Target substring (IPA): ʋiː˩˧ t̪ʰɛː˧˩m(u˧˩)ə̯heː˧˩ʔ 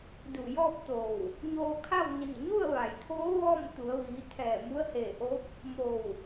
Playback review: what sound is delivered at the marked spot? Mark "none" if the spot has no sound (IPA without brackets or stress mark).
u˧˥